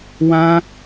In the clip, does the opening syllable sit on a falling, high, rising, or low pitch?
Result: high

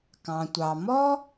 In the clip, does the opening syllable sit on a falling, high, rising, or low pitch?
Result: low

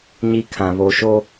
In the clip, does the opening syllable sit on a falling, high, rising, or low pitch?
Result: high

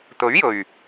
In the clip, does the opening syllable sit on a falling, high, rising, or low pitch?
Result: rising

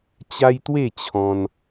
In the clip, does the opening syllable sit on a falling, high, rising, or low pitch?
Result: high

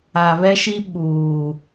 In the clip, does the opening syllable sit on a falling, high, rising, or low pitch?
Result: low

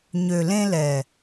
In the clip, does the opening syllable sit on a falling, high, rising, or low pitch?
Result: low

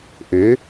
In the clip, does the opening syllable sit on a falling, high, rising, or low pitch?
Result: rising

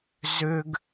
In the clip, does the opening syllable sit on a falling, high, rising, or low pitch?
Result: low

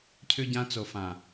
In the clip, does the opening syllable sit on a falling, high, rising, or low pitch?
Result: high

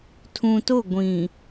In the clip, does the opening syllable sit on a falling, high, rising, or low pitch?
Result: low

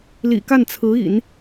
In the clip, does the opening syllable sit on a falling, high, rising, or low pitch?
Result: low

